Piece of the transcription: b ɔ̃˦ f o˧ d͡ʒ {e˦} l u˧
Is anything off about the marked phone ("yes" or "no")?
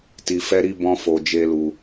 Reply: no